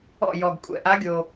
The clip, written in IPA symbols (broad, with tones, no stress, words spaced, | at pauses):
ɔ̰˥˨ jɔ˨˩ɡ kʷʼɛ̰˨˩ʔa˧˥ ɡʲo˨˩